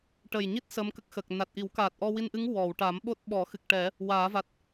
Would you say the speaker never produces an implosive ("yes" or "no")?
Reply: no